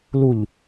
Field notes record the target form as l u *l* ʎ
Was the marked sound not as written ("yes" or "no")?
yes